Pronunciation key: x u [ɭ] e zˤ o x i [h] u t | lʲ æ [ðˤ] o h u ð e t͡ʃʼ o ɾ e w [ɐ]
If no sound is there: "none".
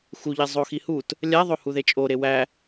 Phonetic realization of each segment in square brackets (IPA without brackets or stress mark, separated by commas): ʎ, h, ðˤ, æ